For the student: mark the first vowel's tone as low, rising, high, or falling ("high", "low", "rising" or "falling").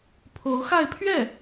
rising